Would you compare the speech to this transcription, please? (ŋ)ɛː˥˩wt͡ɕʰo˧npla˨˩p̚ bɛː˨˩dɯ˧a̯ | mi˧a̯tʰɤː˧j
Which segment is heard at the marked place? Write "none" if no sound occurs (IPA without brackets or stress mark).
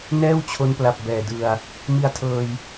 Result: n